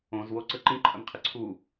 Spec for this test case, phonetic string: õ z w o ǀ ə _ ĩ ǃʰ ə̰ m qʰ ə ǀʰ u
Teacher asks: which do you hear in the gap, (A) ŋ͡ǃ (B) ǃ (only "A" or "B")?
B